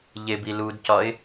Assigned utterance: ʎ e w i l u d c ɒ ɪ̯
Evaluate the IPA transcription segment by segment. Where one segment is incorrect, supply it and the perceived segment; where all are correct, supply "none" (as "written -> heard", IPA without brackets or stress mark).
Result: w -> b